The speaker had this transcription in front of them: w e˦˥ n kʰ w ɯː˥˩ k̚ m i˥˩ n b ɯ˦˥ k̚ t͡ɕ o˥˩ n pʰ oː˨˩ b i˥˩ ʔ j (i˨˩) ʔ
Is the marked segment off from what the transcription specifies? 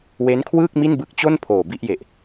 yes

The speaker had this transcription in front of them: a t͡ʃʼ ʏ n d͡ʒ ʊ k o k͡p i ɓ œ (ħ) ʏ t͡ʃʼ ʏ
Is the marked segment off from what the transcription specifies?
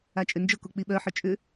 no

